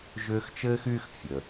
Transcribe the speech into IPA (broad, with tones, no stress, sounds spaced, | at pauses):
ʒ ʏː˦ x t͡ʃ ɘː˥ x y˦ x fʲ ə˩